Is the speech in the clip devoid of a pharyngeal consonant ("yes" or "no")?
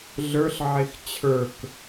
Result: no